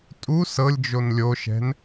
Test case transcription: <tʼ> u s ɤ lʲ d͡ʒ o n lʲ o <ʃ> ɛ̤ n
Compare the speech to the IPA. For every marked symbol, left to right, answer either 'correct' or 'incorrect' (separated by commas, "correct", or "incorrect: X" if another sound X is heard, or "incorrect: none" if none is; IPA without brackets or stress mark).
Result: correct, correct